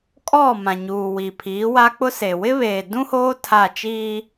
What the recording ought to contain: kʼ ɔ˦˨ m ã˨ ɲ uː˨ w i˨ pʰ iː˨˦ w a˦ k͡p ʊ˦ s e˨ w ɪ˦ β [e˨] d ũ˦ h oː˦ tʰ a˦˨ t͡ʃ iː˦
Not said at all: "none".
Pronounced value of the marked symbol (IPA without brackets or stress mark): eː˨